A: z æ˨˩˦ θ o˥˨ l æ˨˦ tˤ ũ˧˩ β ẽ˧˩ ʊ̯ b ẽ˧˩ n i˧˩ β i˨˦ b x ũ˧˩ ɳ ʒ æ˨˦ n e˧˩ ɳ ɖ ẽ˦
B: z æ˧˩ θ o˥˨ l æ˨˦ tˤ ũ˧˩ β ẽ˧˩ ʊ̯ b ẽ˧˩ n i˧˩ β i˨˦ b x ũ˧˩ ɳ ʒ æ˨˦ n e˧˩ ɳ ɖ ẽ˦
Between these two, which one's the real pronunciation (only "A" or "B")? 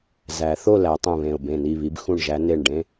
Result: A